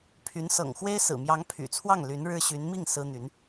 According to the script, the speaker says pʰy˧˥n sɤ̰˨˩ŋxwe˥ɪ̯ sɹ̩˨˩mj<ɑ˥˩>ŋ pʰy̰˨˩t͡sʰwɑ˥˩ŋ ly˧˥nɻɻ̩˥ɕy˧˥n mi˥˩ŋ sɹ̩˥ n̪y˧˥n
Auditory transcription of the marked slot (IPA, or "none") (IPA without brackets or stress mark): ɑ˧˥